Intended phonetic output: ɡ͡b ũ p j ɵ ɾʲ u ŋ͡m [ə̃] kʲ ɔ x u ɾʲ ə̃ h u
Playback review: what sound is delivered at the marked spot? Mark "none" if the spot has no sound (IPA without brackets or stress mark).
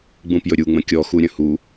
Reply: ə̃